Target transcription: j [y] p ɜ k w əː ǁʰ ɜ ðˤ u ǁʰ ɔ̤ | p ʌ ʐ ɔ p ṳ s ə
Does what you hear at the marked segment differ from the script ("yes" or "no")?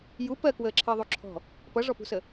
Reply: yes